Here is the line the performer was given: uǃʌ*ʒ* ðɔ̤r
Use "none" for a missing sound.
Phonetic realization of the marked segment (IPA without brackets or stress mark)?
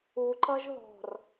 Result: ʒ